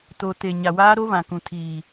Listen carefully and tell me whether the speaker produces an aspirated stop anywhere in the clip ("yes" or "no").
yes